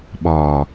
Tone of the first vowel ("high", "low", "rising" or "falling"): low